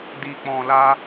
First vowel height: high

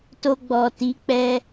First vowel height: mid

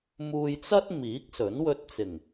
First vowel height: high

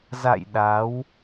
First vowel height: low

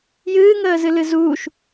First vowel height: high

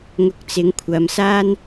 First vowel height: high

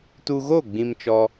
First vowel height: high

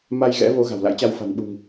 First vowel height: low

